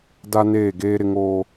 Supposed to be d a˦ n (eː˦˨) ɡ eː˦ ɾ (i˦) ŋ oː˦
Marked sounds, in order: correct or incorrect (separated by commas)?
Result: correct, incorrect